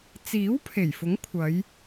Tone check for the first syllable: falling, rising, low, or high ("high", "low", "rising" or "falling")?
rising